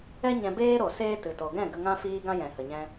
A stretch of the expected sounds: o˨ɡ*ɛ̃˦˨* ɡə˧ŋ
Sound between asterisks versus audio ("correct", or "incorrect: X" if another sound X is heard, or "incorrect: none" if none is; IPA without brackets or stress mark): correct